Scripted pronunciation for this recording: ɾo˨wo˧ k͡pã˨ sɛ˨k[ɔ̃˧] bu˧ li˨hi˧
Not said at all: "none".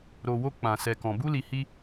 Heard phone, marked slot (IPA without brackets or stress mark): ɔ̃˨